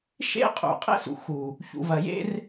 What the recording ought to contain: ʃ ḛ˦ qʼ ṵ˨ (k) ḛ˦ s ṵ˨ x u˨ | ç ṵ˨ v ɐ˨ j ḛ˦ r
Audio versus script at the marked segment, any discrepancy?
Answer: yes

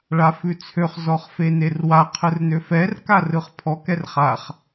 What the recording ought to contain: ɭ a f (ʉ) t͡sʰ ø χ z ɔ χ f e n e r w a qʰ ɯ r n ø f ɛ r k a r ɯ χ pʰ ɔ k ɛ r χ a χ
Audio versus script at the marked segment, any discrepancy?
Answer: no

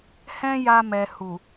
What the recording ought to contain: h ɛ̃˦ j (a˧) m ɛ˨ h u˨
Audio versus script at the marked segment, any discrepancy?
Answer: no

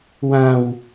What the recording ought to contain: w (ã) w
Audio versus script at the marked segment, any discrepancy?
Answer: no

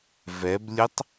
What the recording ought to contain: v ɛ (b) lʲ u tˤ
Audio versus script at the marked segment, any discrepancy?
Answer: no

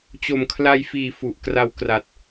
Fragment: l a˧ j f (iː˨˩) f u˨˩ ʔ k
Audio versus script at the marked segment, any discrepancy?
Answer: no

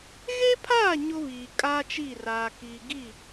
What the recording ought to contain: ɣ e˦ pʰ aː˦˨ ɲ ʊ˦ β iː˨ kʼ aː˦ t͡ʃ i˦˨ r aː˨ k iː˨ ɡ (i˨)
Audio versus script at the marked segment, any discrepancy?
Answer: yes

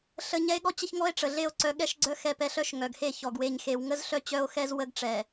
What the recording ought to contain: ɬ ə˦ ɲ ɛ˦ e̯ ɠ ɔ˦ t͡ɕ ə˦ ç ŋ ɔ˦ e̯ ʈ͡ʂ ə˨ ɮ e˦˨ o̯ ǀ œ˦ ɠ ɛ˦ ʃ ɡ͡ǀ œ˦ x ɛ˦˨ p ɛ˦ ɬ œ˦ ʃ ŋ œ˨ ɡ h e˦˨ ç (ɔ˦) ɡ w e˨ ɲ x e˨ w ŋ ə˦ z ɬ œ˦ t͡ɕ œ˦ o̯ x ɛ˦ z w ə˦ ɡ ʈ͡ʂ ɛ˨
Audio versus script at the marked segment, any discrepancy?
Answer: yes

